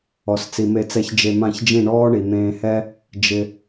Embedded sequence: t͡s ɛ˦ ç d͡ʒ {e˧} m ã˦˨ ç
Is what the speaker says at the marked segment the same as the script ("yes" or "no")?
yes